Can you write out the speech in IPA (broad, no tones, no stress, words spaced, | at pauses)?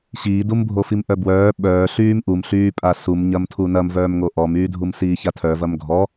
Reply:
ɕiːdumbʱofim ʔœbwœː ɓœː ɬyːmʔumɬyːpʼa sumɲɐm tʰunɐmvœːmŋo ʔɔmyːdʱum siːçatʰœ vɐmɡʱɔ